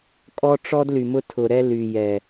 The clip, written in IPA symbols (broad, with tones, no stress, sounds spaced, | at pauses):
kʼ ɔ˦ ʈ͡ʂ ɔ˦ d l y˨ m ʊ˦ tʰ ʊ˨ ɾ ɛ˦ l y˨ j ɛ˨